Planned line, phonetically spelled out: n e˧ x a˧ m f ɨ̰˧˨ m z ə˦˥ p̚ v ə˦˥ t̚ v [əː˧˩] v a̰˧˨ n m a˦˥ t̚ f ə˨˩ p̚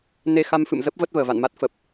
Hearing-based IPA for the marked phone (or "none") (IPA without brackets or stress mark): əː˧˩